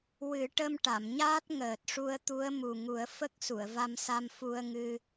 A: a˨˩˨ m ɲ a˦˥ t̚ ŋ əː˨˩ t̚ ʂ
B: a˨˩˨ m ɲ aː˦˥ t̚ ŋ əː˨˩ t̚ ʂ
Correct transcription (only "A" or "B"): B